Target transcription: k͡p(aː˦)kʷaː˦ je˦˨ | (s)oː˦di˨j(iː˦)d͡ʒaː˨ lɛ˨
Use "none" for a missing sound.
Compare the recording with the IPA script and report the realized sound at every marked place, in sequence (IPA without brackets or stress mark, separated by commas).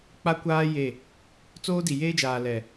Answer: a˦, t͡s, eː˦